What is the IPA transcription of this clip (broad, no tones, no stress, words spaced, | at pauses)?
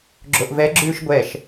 ɡ͡ǁoʔvɛɡ͡ǁʉːʃ ɡʷɛʃ